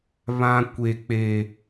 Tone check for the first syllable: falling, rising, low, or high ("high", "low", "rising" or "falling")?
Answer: high